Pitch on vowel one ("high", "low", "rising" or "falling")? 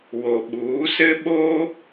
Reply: low